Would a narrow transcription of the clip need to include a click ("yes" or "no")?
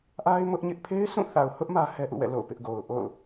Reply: no